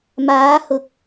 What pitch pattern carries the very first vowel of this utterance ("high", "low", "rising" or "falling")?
rising